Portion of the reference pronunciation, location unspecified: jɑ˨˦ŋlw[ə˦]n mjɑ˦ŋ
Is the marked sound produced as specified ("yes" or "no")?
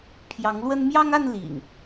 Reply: yes